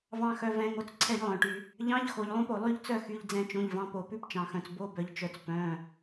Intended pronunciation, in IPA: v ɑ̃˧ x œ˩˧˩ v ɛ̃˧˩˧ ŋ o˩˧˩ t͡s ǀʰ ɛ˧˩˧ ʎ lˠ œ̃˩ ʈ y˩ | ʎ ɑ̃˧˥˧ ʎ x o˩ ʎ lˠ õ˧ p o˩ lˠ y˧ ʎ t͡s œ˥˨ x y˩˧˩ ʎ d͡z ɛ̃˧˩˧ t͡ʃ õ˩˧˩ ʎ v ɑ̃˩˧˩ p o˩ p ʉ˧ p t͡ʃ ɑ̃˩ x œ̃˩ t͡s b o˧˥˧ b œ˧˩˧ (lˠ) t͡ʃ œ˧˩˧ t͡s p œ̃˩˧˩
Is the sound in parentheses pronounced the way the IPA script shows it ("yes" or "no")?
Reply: no